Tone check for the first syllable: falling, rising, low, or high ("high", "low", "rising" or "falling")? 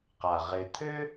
low